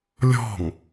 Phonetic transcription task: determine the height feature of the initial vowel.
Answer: mid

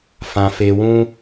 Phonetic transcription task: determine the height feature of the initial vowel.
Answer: low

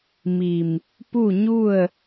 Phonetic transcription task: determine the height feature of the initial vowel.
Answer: high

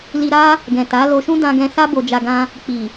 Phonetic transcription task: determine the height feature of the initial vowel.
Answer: high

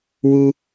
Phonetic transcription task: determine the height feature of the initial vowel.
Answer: high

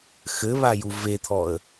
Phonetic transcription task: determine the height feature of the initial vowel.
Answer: mid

